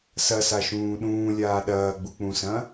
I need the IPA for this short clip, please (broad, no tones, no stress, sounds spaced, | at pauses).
s ɐ s a ʃ ũː ɗ ũː lʲ aː ɗ ɐː ɡ͡b u k͡p ũ s ɐ̃